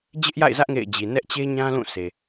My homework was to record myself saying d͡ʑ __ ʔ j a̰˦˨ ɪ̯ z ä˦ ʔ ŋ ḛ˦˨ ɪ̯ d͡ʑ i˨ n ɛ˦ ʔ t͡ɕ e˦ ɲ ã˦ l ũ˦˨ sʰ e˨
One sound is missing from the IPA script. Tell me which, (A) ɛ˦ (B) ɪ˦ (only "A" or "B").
B